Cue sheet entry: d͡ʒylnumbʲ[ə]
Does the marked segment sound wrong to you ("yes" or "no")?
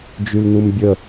no